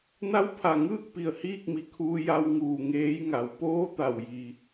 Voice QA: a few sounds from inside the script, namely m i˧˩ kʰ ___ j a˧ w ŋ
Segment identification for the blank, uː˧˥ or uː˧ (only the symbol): uː˧